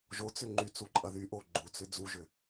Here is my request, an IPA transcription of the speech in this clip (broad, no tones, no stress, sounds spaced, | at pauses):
ʒ o t͡s ʏ ŋ͡ǃ y t͡s u ǃʼ ɐ ð y ʔ o ɡ͡ǃ u t͡s ʏ d͡z u ʒ ʏ